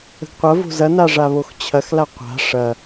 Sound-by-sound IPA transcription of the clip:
ə̤ ɡ qʷ ɐ v o̤ z ɐ n a ʐ a β o x t͡ɕʰ ɐ x l a qʷ a̤ ʂ ɐ

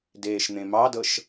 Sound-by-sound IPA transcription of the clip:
d eː ʃ n̪ ẽ m ɑ d ɤ ʃ

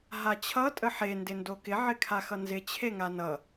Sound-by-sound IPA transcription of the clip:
ɦ a t͡ɕʰ ʌ tʼ ə ħ e n d ɪ n d o k ɪ ʕ ɪ kʰ a x ʌ n z ɪ t͡ɕʰ e ŋ a n ʌ

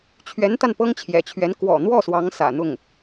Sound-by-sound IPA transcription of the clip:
t͡ɕʰ ɥ ɛ˧˥ n t̪ a˧ n p ɤ˥ ŋ t͡ɕʰ j ɛ̰˨˩ t͡ɕʰ ɥ ɛ˧˥ n k w ɔ̰˨˩ n̪ w ɔ˥˩ s w ɑ˧˥ ŋ s ä̰˨˩ n̪ ʊ˥˩ ŋ

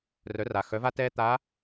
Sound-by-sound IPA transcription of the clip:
r œ˩˧ r a˩ x œ˩˧ v a˧ t ɛː˧ t̪ a˧˥

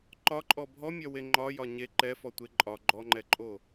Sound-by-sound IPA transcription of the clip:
ǃ ɒ ǃʼ ɔ bʱ ɔ mʲ ɒ w e ŋ͡ǃ ɒ j ɒ ɲ e ǃ ɛ f ɔ tʷ e ǃʼ ɒ ɡ͡ǃ ɔ ŋ͡ǃ ɛ ǃʼ o

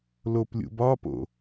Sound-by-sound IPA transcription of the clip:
l o p lʲ ṵ b ɒ p o̰

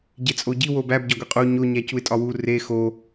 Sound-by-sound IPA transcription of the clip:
ɟ e t͡sʼ o ɟ i w o b æ b ɟ ɒ ɡʷ i qʼ u ɲ o ɲ æ c u ɪ̯ tʼ ɒ w u r e x o

